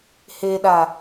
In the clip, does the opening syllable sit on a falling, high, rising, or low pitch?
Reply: low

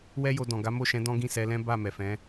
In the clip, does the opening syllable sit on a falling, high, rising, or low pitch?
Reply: high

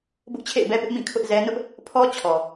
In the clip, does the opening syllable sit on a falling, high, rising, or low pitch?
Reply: high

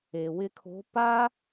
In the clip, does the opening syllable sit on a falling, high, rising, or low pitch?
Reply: low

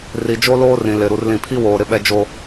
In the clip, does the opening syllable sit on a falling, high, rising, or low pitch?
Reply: low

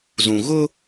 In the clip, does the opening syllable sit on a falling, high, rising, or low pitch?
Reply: low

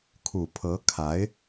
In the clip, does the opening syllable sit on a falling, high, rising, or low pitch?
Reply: low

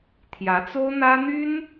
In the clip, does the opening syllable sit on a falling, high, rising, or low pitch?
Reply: rising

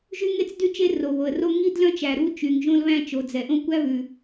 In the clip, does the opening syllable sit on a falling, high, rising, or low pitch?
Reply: high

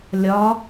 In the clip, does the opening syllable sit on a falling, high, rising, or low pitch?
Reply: rising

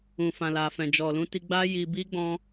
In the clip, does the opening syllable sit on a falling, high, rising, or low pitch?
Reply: low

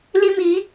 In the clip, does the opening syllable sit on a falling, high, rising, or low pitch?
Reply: high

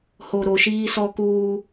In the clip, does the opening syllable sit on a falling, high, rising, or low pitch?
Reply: low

